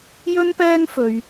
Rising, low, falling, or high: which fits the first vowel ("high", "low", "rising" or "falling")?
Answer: high